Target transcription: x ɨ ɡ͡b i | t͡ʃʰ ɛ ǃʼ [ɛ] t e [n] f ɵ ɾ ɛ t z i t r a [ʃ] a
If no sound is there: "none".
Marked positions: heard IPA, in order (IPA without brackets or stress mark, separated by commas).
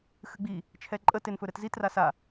ə, n, s